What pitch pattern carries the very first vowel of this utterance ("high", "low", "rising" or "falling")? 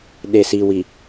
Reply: low